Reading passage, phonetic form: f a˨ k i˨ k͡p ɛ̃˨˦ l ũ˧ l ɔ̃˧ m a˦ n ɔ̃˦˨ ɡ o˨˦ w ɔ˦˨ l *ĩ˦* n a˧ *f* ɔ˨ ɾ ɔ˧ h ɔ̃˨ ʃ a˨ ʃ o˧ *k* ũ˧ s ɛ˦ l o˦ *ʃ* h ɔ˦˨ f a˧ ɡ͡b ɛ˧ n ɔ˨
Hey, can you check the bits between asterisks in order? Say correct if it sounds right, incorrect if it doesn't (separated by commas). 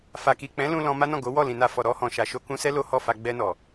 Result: incorrect, correct, correct, incorrect